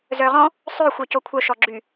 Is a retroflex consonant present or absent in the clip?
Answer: absent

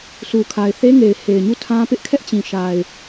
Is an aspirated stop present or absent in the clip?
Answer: present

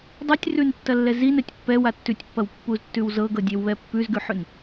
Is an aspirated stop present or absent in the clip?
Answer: absent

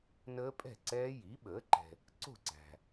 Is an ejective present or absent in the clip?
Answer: present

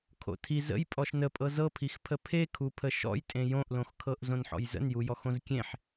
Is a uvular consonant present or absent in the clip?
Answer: absent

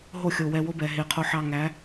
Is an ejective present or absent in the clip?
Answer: absent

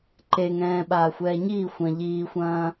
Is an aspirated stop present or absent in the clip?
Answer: absent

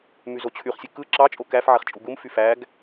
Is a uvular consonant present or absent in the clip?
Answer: present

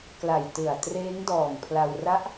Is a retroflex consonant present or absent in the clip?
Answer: absent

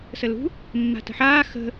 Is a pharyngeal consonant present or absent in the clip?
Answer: present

